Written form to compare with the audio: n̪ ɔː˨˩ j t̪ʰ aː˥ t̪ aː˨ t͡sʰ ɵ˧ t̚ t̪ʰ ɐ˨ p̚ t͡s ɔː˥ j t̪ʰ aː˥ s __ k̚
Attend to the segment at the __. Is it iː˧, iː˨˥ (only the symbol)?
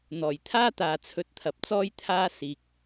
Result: iː˧